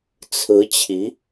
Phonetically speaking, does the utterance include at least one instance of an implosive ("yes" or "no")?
no